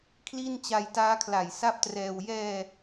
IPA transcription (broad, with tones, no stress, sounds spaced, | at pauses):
kʰ l i˥˩ n t͡ɕ a˧ j t aː˦˥ kʰ l a˨˩ j s a˥˩ p̚ t r ɛː˧ w j ɛː˧